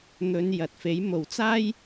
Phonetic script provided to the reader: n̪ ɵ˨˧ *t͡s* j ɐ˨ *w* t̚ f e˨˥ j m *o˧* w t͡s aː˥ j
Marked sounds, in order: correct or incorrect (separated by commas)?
incorrect, incorrect, incorrect